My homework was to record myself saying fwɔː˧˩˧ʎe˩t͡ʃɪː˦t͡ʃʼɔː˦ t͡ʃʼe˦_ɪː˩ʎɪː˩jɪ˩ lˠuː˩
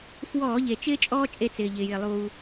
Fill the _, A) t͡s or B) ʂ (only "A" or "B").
A